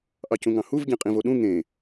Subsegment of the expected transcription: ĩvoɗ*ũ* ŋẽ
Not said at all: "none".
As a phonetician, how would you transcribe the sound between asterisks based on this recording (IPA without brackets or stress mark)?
ũ